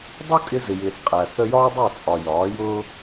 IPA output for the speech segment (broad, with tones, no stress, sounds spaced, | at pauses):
dˤ u˦ kʼ ɪ˧ z ɪ˨ j ɪː˨ θ qʼ æ˨ θ ə˧ j ɒː˦ dˤ ɛ˦˨ t͡sʼ ɒ˨ j ɒː˨˦ j ʊː˦